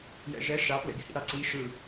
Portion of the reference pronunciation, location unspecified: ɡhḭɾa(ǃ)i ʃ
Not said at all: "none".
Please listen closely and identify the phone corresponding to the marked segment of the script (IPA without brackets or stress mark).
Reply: ǀ